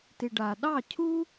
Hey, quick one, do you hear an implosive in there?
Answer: yes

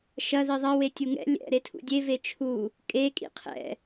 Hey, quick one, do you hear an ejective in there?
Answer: yes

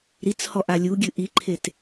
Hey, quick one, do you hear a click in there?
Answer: yes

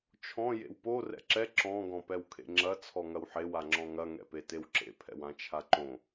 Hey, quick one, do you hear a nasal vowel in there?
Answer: yes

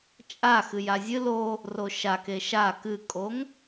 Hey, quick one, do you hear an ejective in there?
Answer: yes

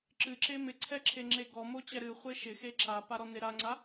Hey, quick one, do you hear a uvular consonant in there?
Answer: yes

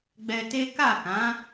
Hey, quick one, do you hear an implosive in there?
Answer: no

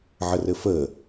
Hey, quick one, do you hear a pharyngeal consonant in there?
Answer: yes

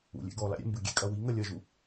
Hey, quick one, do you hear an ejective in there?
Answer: yes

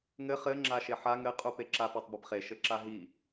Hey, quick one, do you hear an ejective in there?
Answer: yes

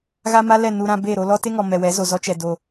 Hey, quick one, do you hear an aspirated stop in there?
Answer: no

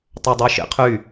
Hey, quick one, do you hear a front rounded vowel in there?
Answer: yes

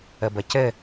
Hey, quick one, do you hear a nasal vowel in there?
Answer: no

